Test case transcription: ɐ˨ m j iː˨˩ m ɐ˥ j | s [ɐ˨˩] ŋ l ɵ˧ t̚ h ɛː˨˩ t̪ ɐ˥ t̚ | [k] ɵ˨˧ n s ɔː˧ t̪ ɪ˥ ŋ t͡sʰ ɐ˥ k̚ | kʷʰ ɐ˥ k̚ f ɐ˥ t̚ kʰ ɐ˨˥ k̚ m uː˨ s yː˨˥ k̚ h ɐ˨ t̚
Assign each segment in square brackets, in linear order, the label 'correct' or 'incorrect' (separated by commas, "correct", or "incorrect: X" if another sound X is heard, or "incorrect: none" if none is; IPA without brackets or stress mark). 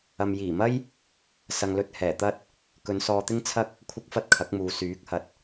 incorrect: ɐ˨, correct